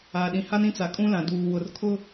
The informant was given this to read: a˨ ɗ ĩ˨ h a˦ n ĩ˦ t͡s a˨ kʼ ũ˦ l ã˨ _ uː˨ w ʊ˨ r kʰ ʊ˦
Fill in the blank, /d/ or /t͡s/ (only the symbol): d